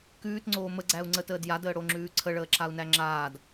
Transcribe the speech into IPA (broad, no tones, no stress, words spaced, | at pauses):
kʉːtŋ͡ǀoː məɡ͡ǀæu̯ ŋ͡ǀətəːd jadəːɽoŋ͡ǁʉː ǀʰəɭəːǁau̯næ ŋ͡ǁaːd